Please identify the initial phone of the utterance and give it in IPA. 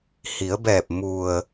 h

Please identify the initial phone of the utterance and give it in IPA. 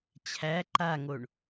t͡ɕʰ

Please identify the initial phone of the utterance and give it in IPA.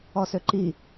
ɔ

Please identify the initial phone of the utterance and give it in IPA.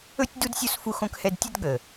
ɵ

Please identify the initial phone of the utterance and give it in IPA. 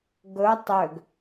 ɡ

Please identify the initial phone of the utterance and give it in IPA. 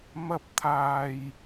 m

